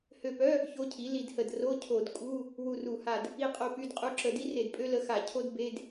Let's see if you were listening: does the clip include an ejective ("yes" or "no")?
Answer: yes